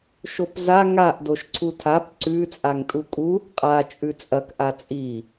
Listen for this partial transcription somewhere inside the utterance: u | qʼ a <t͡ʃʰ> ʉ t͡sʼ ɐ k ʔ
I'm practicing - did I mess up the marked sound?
yes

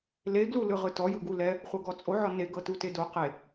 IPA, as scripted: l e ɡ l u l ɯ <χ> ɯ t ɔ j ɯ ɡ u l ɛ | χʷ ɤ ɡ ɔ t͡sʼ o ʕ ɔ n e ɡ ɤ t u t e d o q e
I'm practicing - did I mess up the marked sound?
yes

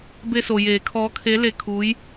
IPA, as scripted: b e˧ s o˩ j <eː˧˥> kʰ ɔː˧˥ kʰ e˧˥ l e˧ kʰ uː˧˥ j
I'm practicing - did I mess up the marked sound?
yes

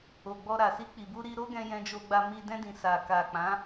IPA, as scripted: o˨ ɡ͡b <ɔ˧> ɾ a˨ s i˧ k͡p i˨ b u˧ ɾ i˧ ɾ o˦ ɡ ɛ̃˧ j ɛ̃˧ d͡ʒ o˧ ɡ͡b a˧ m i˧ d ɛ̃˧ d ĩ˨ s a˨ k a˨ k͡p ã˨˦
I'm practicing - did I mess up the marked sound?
no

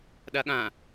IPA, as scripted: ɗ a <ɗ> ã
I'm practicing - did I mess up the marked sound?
yes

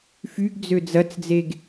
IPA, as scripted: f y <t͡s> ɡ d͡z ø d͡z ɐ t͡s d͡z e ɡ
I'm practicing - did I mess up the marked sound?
yes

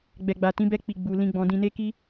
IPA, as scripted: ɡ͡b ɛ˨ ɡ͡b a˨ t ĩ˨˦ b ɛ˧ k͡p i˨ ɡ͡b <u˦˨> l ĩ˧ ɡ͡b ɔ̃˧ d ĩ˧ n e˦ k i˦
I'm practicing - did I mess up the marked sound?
yes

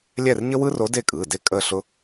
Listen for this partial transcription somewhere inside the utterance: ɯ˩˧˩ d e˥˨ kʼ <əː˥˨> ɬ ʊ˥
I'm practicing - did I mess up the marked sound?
yes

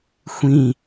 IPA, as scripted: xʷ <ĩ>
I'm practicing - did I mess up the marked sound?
no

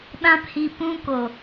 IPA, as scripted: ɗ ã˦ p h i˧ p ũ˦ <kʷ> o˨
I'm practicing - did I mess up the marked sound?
yes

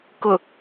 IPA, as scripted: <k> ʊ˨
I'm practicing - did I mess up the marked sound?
no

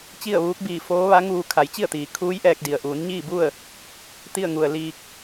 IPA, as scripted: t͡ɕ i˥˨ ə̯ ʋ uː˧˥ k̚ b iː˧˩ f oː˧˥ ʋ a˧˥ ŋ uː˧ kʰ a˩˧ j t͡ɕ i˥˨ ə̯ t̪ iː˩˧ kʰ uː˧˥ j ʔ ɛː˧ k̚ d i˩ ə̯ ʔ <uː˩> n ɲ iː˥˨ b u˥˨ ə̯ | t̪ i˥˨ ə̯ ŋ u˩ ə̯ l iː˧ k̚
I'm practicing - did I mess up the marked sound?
yes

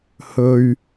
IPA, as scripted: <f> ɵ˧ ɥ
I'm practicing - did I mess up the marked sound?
yes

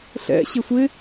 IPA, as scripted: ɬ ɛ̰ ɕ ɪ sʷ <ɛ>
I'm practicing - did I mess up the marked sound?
yes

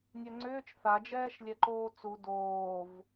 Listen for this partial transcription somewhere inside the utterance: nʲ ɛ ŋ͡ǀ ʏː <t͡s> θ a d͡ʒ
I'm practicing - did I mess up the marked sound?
yes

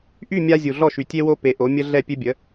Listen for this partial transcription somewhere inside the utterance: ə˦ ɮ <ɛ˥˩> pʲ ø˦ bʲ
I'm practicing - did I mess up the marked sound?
no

